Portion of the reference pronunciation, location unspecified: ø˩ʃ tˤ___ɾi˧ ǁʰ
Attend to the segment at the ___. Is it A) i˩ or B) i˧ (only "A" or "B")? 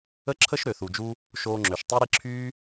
B